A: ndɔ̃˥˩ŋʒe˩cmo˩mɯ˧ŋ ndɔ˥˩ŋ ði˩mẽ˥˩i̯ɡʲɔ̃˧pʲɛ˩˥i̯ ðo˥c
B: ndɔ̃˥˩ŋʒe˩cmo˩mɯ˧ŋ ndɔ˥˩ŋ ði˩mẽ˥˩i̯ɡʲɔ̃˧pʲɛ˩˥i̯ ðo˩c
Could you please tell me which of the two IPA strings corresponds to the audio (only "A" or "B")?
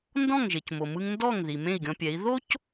A